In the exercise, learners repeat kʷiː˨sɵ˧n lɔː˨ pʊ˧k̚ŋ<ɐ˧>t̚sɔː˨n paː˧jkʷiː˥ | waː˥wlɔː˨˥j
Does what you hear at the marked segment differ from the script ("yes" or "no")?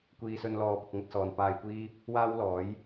no